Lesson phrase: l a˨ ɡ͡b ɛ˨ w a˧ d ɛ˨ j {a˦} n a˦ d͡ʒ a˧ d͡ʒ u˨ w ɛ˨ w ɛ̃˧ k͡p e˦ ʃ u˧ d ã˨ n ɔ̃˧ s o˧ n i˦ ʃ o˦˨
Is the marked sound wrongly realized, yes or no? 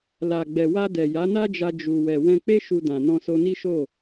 yes